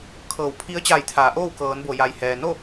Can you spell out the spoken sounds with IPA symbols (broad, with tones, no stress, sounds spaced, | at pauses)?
kʰ ɤː˧˩ w pʰ i˧˥ ə̯ t͡ɕ aː˧˩ j t̪ʰ aː˩˧ ʔ oː˥˨ w k ɤː˩˧ n b o˩ j a˩ j h ɛː˩ n o˥˨